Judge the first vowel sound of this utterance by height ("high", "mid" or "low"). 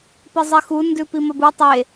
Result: high